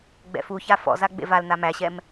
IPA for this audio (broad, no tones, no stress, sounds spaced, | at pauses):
ɡ͡b ɛ̰ f u ç a f ɔ̰ z a ɡ͡b ḛ v a l n a m æ ɕ ɛ m